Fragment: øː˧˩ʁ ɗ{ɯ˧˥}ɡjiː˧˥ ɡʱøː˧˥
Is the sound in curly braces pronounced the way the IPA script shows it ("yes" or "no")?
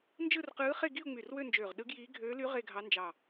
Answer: yes